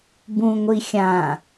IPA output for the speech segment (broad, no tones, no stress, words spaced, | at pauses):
bũŋʷi xʲã